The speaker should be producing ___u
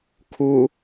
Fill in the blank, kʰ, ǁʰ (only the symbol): kʰ